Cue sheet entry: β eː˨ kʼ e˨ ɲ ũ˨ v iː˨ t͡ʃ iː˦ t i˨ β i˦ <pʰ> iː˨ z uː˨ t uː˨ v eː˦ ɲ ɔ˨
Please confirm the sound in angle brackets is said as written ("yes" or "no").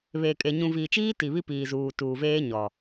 no